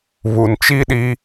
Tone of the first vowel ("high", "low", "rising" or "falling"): low